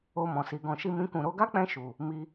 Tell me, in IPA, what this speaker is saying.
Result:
o˧ m ɔ̃˨ s i˨ ɡ ɔ̃˧ ʃ i˦ m ĩ˦ k ũ˦˨ ɾ o˧ ɡ a˦ k͡p ɛ̃˧ ʃ u˨ | m i˧

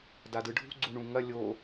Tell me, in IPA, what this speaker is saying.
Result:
d a d ɯ ɖʱ ṳ ɡ͡ǀ u ɳ ũ ŋ ɐ lʲ o

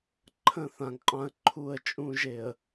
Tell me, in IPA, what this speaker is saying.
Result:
ǃʰ ə̃˦ θ ã˨ ŋ qʼ ã˦ ə̯ ǃʰ u˦˨ ə̯ t͡ʃʼ ũ˦ ʒ e˨ ə̯

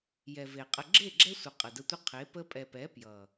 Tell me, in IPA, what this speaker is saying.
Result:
j ɛ˨ v e˨ qʼ ə˧ ɡ͡ǁ e˦˨ ɡ͡ǁ ɛ˦ sʷ ə˨ qʼ ə˨ d ə˧ tʷ ə˦ qʰ e˨˦ p ə˦ pʼ ɛ˨ p ɛ˨˦ p j ʌ˨

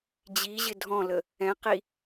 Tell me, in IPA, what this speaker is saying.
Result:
d͡ʑ i ʑ ɪ dʱ ɔ̃ l ə | ɛ̃ q i

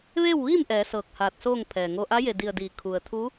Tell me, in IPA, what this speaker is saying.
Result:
ʋ eː˥˨ w ʋ iː˥˨ m ʔ ɛː˩˧ s ɤː˧˩ k̚ h aː˧˩ t̚ s oː˥˨ ŋ pʰ ɛː˩ ŋ o˧ ʔ a˧˥ j e˧˩ d i˧˩ ə̯ d iː˩˧ kʰ u˩ ə̯ t̪ʰ u˧˥

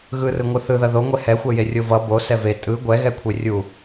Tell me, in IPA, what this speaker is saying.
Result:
ɣ ɯ r ɯ ŋʷ ɯ θ ɯ ð ʌ ð o ŋʷ ɛ h ɛ xʷ ɛ j e rʲ o v ʌ b o s ɛ v e tʼ ɯ ɡʷ ɛ ɣ ɛ kʷʰ e rʲ u

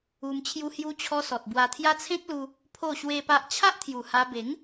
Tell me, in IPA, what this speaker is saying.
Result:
u˧ m t͡ɕʰ j u˧ h j u˧ t͡ɕʰ ɔ˧ s ɔ˨ t̚ b w a˧ t̪ʰ j a˦ t͡sʰ ẽ˦ k̚ l u˧ | pʰ o˥˧ ɕ w e˦ p a˦ ʔ t͡ɕʰ a˦ ʔ t̪ʰ j u˨˩ h a˧ b e˨˦ ŋ

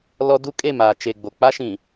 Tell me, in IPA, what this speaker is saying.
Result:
l ɔ˦ d u˦ kʼ e˦˨ m aː˨ t͡ʃ e˨ ɡ͡b o˨ k͡p a˦ ʃ ĩ˨

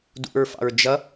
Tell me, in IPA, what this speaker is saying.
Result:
d ṵ ɹ f ɑ̰ ɹ d͡ʒ ʌ

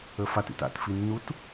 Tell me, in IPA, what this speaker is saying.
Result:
ə f a t ḭ t a̰ t f i nː u t

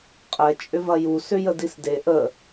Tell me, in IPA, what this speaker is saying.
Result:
qʼ ɛ t͡ʃʼ ʏ v ɐ j u s ʏ j ə d i s d e ʔ ə

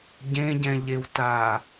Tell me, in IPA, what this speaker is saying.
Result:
ɟ ẽ ɟ ɛ̃ ʎ e w t aː

